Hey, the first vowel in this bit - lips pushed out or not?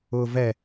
yes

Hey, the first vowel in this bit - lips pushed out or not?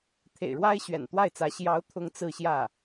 no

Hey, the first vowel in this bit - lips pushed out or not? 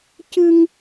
no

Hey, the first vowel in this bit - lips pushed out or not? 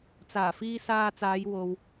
no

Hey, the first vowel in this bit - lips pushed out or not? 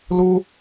yes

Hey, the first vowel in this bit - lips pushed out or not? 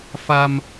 no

